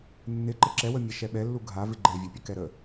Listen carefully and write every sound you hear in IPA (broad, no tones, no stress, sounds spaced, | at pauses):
nː ɪ ǃ ə ǁ ɛ w ə mʲ ɛ ʃ ɛ ɓ ɛ lː u ɡʱ a v ɪ ɡ͡ǃ ɛ vʲ u pʲ ə k ɛ ɾ ə